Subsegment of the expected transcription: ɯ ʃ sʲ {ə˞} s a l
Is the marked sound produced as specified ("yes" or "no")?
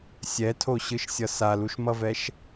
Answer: no